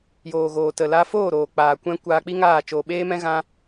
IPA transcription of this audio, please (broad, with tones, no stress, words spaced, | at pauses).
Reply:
joː˨ɣoː˨tə˨la˧ foː˦˨ɾoː˨ k͡paː˨kʷɛ̃˧ kʷaː˧k͡pi˦ŋaː˦˨ t͡ʃoː˧ɓeː˦mɛ̃˦ɣã˦